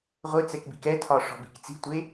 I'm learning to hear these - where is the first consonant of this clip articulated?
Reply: uvula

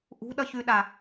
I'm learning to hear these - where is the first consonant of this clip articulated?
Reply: throat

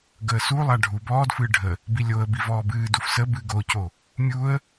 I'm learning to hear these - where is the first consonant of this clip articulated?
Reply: velum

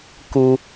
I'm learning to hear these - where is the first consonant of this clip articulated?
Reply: velum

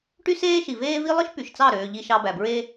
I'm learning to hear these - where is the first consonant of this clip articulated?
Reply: retroflex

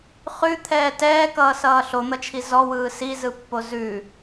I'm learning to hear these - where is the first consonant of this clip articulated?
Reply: uvula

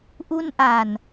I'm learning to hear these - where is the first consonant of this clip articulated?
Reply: throat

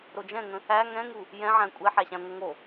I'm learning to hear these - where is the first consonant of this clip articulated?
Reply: tongue tip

